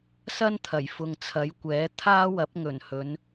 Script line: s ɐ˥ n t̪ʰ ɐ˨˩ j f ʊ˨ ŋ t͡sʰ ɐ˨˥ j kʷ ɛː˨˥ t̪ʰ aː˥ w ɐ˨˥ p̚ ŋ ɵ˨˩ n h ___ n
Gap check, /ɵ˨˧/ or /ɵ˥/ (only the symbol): ɵ˨˧